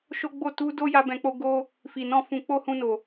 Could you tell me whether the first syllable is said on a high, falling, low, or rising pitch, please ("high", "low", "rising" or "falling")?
high